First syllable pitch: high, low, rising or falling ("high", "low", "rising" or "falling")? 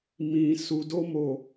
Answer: low